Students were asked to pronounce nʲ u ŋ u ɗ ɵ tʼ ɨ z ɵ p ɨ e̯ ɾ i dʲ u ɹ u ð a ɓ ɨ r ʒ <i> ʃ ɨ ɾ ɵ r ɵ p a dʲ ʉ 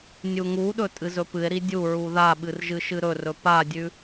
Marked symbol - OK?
no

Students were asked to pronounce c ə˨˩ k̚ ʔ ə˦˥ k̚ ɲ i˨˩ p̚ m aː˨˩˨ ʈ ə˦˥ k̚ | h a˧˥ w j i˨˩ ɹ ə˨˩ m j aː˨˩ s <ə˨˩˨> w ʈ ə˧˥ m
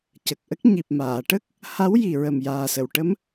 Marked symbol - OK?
yes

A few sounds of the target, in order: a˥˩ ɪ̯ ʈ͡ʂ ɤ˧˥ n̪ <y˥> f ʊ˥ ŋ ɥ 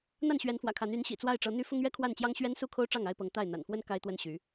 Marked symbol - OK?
yes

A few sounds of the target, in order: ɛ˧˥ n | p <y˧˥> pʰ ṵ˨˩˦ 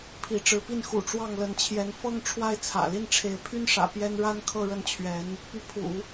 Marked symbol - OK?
yes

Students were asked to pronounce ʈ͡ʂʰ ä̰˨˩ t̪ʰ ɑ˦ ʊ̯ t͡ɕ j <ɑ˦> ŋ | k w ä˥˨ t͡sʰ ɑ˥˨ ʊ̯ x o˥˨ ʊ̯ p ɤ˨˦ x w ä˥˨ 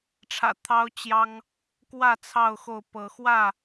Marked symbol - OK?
yes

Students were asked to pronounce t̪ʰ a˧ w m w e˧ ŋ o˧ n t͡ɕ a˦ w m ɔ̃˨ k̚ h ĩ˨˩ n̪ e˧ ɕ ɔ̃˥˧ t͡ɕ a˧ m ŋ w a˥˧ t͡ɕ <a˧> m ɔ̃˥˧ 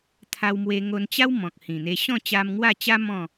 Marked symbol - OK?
no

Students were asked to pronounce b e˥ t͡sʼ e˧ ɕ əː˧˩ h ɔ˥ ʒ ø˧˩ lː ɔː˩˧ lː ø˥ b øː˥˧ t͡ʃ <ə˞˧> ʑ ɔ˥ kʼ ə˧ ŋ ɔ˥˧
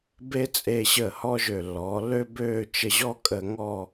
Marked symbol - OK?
no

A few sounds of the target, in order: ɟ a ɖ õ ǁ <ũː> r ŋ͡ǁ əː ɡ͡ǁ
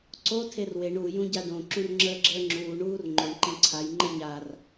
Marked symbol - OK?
no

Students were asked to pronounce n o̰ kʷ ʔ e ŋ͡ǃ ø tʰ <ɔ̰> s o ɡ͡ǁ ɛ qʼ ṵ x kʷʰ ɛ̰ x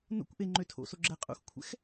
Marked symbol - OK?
no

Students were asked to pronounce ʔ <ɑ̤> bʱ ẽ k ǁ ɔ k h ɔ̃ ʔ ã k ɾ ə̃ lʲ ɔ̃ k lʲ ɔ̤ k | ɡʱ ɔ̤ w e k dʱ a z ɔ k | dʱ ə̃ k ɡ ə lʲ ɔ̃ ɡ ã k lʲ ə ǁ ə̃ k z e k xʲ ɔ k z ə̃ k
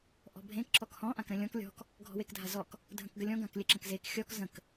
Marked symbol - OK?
no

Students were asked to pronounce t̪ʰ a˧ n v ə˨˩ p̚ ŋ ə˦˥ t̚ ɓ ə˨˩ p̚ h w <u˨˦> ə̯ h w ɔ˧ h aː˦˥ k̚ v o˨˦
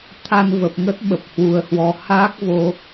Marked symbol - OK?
yes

